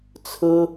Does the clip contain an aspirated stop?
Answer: yes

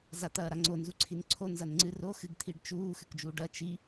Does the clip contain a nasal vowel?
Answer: no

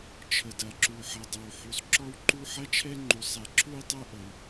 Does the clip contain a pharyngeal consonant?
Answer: yes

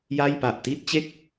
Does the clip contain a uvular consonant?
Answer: no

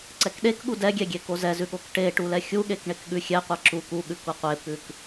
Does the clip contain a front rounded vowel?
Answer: no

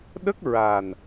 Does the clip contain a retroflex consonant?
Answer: no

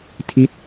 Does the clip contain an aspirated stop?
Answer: yes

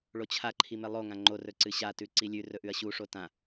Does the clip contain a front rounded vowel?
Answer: no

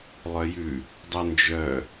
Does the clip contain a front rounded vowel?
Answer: yes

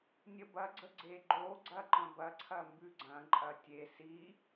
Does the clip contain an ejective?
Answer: yes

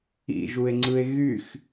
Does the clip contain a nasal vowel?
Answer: no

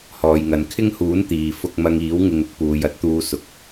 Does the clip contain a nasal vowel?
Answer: no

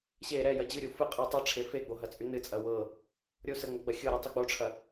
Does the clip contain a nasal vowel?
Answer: no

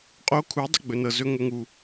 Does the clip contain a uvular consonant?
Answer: yes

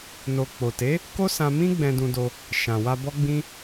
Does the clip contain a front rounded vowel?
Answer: no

